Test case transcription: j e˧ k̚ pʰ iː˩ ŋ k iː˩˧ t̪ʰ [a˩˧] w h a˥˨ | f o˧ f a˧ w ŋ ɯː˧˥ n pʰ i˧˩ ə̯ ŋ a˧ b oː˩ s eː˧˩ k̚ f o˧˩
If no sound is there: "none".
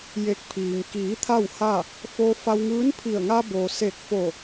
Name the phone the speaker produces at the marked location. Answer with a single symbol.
a˥˨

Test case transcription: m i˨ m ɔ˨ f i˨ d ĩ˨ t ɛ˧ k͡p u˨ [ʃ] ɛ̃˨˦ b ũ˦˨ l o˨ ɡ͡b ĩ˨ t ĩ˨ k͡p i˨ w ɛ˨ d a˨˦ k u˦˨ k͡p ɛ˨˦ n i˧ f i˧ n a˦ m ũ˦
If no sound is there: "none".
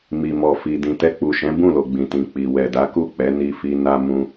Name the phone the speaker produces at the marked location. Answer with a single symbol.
ʃ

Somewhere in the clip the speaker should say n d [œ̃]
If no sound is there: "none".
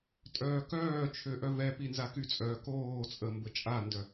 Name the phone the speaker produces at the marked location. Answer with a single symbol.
œ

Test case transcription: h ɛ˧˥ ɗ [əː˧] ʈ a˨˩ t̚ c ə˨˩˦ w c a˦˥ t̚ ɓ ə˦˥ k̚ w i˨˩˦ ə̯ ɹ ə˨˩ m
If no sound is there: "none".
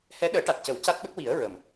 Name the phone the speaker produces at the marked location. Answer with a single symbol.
əː˨˩˦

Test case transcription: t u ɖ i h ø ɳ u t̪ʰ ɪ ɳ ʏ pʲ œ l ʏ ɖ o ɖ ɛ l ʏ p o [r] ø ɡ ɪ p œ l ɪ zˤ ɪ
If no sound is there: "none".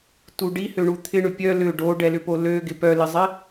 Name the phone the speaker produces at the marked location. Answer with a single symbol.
l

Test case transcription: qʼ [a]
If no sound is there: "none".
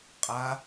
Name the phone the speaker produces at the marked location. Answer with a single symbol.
a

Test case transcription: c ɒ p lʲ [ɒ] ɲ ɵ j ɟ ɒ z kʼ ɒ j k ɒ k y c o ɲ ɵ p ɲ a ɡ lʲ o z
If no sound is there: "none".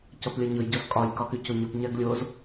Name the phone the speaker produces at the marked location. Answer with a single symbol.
ɒ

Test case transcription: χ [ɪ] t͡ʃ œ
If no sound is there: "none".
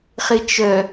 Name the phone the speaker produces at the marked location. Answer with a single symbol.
ɪ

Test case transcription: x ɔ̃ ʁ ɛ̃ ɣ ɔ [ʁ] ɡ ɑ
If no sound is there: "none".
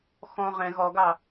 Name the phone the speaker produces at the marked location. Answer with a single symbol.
none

